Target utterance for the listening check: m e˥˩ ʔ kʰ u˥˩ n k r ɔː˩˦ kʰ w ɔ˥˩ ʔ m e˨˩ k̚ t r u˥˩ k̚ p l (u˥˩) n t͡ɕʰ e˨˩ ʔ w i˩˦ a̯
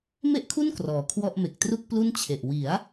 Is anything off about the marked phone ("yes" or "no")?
no